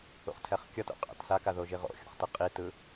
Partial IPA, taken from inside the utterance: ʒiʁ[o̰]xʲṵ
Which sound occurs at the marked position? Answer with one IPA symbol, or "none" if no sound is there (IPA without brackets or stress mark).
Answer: o̰